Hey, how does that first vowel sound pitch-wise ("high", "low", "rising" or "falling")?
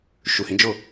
low